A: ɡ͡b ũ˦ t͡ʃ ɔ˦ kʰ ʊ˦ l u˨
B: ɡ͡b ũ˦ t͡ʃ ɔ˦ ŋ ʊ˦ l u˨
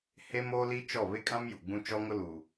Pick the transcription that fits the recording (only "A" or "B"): B